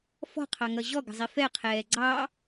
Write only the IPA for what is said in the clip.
f ɔ̤ qʰ ɑ ŋ ʌ ʑ ɔ ɡ ə̤ zˤ i f ɛ qʰ ɛː ɡ͡ǀ ɑ

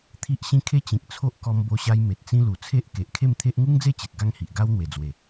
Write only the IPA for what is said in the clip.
t̪ʰ i˦ ʔ ɕ ĩ˦ kʰ e˦ t͡ɕ ĩ˨ k̚ t͡sʰ o˦ ʔ k ɔ˧ m b o˧ ɕ a˧ j m e˨ t̚ t͡s ĩ˦ l u˨˩ t͡sʰ e˦ ʔ k e˨ ʔ kʰ e˥˧ m t̪ʰ e˦ ʔ ŋ u˦ ŋ d͡z e˥˧ t͡ɕ e˨ t̚ ɡ a˥˧ ŋ h i˨ ʔ ɡ a˦ w n̪ w e˨˩ d͡z w e˨˩

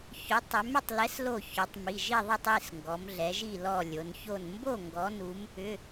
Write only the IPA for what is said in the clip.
ç ʏ˨˥ tˤ ʏ˨˥ m ʏ˥˨ tˤ l ɛ˨˥ s l o˧˩ ç ʏ˩˧ tˤ m i˩˧˩ ʒ i˥˨ ðˤ i˥˨ tˤ i˩˧˩ s ŋ ɡ ɔ˩˧ m ɮ ɛ˩˧ ʒ i˥˨ l ɔ˧˩ lʲ o˩˧ n ç o˥˨ n m b o˥˨ ŋ ɡ ɔ˨˥ n u˨˥ m | ʏ˩˧˩

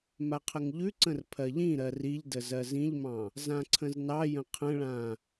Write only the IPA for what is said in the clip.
m a qʰ ə ŋ ʎ ʉ ǀ ə̃ r pʰ ɜ ʎ ĩ ɾ ɜ r i ʎ d ə z ɜ z ĩ ʎ m ɑ̃ | z ã ǀʰ ə̃ z n ɑ j ə̃ qʰ ə̃ ɭ ã

